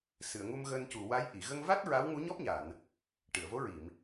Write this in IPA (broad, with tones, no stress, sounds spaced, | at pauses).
s ɨ˨˩˨ ə̯ ŋ u˧ m ɣ əː˧ n c u˨˩ w a˧˥ j ʔ i˨˩˨ ɣ ə˧ ŋ v a˦˥ t̚ ɹ a˧˥ w ŋ u˧˥ ɲ ɔ˦˥ p̚ ɲ a˨˩˨ n | ʈ ɨ˨˩˨ ə̯ v o˧˥ ɹ i˨˩˨ m